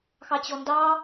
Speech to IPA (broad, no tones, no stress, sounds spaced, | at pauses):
x ɑ t͡ɕ ɔ n d ɑ